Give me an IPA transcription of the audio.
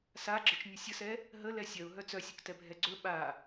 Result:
s a ɡ͡ǁ ə t͡ʃ nʲ ə sʲ ə s ɛ | ɦ ə l ɛ sʲ œ ʊ̯ ɦ œ t͡s œ sʲ ɵ k t ɛ bʱ ɛ ɡ͡ǀ ɵ ɓ a

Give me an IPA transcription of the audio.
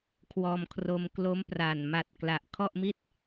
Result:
kʰ w ɔː˧ m kʰ r o˧ m k l o˦˥ m p r a˨˩ n m a˨˩ t̚ k l a˨˩ ʔ kʰ ɔ˥˩ ʔ m i˥˩ t̚

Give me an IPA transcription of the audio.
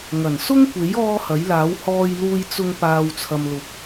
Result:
ŋ ɐ˨˩ n s ʊ˥ ŋ kʷ e˨˥ j ɔː˥ h ɐ˨˥ j l aː˨˥ w h ɔː˧ j l uː˧ j t͡s ʊ˧ ŋ p aː˨ w t͡sʰ ɐ˨ m l ʊ˨˥ k̚

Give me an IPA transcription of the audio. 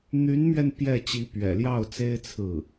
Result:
n̪ y˧˥ n m ɥ ɛ˧ n p j ɛ˥˩ t͡ɕ i˧˥ p ɥ ɛ̰˨˩ l j ɑ˥˩ ʊ̯ t͡s e˥ ɪ̯ t͡sʰ ɹ̩˥˩

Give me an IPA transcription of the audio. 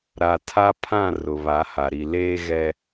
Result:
ɾ a˨ tʰ a˦ pʰ ã˦˨ r ʊ˨ β a˨˦ h a˨ ɾ i˨ l eː˦ ɣ ɛ˦

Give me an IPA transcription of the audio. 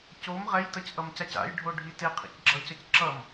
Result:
c o m ʁ ɛ j t ʌ c ʔ ʌ m c a c a̰ j ɖʱ o ɖʱ i t e qʰ ḭ c ɡ͡ǁ ʌ c ʌ c ǁ ʌ m

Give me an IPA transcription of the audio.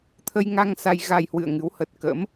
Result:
t̪ʰ ə˧ j ŋ a˧ ŋ s a˧ j ɣ a˧ j h w ɨ̰˧˨ ə̯ ŋ ɨ˨˦ w h ə˨˩ t̚ k ə̰˧˥ m

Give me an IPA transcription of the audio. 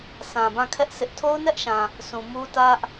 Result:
sʰ ã˨ b ã˦˨ kʰ ɛ˦ ʔ s ɪ˦ ʔ tʰ o˦ ʊ̯ n ɛ˦ ʔ ʃ ã˨ | s ũ˨ m u˦ t ä˦ ʔ

